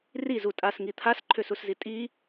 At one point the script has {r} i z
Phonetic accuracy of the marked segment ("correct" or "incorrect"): correct